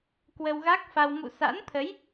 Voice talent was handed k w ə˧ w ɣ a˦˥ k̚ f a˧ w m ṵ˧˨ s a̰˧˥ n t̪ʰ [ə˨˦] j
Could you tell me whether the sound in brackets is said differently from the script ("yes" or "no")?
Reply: no